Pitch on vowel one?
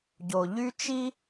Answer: low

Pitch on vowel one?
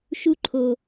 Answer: high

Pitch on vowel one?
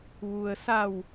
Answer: low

